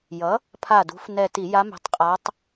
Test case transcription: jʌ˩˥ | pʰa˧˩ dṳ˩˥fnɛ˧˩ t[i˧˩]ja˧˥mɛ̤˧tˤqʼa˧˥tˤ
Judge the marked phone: incorrect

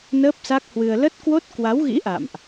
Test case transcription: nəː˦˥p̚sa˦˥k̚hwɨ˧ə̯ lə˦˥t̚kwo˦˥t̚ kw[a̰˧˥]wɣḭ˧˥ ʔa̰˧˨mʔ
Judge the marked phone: incorrect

